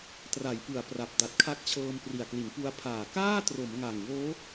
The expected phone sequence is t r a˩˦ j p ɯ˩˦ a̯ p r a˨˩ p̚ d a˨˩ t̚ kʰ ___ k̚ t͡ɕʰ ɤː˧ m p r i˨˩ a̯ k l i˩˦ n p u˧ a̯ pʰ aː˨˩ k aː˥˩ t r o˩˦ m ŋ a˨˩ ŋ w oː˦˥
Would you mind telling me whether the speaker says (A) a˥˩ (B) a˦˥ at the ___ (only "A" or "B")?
B